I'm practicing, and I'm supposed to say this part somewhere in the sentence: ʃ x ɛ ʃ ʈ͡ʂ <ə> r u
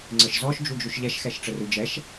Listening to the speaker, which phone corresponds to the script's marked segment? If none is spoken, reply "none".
ə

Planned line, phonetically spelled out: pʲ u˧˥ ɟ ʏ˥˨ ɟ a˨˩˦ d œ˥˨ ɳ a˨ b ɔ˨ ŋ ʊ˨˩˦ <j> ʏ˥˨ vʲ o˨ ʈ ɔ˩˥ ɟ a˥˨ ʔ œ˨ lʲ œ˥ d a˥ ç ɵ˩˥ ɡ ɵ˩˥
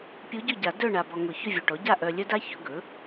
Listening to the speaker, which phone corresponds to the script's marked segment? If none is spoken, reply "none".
ç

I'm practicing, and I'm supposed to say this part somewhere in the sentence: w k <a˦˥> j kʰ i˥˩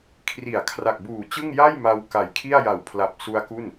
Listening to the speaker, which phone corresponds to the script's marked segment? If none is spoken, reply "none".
a˨˩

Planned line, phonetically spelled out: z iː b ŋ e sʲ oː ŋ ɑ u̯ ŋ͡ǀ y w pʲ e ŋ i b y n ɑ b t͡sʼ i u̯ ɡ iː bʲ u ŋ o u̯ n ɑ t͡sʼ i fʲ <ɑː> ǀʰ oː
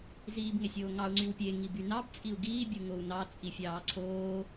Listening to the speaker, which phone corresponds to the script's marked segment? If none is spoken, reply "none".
ɑː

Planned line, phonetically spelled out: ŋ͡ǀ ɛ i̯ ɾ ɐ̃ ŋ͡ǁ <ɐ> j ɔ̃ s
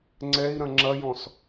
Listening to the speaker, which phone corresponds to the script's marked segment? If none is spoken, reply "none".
ɐ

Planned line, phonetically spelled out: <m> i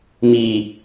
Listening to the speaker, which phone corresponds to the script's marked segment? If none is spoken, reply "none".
m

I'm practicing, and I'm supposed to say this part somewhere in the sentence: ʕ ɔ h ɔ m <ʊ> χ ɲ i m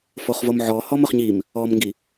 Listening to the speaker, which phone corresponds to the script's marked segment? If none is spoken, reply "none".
ʊ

